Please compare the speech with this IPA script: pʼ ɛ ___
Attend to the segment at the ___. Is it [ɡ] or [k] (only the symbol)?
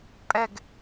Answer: ɡ